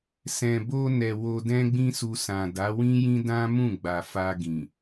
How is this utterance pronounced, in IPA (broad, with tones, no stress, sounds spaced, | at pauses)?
s ɛ̃˨ b o˧ n ɛ˨ w o˧ d ɛ̃˦ ɡ͡b ĩ˦ s u˧ s ã˨ d a˨˦ w ĩ˦ j ĩ˦ d ã˦ m ũ˦˨ ɡ͡b a˨ f a˧ ɡ ĩ˨